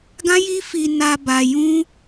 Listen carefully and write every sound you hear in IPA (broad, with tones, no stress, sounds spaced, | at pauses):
ɡ ã˦ j i˦ f i˧ n a˧ b a˧ j ũ˦